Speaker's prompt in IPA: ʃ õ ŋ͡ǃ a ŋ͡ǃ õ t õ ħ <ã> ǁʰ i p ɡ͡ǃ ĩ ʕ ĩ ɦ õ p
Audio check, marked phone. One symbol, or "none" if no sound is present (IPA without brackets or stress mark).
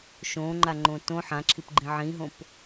ã